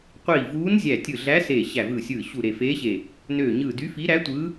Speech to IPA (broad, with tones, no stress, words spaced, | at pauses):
qʷiː˧˩vuː˧˥n zʲæ˧˩tʲɯ˧˩ɮæ˧˥ seː˧˩ɕæ˧˩vɯː˧˩sʲɯː˧˩ ɕu˧˩ɾe˧˩feː˧˥ɕe˧˩ | nøː˧˩ɲɯː˧˩ dy˧˥fi˧˥ɾæ˧˥tʷɯ˧˥